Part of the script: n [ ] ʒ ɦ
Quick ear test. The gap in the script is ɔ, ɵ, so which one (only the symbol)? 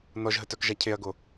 ɔ